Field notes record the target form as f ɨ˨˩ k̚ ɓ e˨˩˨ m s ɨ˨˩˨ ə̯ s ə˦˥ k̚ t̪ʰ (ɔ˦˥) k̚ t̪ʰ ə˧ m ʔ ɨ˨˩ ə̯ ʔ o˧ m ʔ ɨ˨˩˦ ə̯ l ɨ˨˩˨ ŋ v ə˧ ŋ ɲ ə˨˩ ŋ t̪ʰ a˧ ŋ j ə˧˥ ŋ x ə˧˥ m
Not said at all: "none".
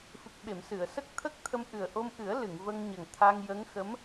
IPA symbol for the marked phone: ə˦˥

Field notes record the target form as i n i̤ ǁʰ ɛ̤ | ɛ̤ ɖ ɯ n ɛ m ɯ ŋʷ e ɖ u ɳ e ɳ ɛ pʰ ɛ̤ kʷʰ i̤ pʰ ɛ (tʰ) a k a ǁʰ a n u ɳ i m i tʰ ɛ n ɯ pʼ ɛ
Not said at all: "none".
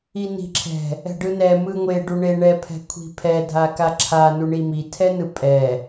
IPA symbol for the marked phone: dʱ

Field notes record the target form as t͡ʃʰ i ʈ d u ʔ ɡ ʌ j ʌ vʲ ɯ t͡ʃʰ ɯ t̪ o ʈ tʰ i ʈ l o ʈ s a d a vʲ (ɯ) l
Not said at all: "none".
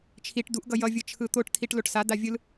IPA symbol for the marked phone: ɯ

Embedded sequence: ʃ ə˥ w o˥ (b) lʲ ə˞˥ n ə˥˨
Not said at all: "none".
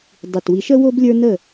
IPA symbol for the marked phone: b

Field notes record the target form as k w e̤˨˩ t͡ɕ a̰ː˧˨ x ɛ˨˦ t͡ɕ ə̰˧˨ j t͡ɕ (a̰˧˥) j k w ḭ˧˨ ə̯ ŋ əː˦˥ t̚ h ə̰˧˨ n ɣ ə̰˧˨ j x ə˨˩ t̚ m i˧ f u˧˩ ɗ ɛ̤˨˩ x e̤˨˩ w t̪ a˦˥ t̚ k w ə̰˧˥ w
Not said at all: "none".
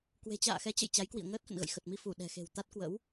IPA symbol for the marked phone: a˨˦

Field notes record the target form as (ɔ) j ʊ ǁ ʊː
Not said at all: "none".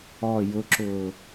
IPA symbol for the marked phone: ɔ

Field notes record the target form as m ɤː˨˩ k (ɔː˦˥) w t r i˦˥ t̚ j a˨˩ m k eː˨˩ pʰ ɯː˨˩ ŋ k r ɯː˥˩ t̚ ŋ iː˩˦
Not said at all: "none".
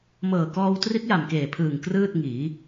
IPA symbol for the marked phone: ɔː˧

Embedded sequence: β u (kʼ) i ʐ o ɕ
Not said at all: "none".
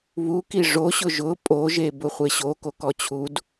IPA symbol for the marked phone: k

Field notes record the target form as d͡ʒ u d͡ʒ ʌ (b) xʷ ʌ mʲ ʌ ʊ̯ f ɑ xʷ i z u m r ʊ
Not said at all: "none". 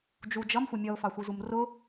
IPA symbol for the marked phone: m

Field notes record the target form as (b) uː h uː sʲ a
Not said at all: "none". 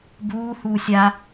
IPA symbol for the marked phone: b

